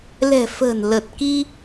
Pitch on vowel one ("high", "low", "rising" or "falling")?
low